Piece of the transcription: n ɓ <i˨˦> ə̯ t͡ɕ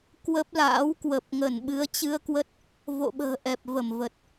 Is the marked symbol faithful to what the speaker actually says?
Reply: no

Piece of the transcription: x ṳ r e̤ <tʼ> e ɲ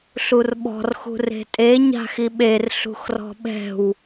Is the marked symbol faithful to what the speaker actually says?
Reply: yes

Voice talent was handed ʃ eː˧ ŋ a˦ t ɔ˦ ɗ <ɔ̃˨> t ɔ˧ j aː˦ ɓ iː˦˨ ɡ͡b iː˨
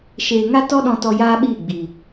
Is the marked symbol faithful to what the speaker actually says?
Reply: no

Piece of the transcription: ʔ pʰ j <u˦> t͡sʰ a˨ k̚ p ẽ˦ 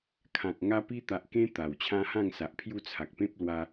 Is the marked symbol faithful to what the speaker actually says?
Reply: no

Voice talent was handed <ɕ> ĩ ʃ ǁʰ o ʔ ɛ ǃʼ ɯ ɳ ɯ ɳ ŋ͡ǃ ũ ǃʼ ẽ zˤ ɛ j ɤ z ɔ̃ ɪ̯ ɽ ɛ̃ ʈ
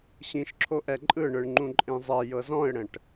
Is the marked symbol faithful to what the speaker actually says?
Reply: yes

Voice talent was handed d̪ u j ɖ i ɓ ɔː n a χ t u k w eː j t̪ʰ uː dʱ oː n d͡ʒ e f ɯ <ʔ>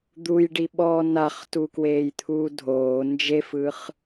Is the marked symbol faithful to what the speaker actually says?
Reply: no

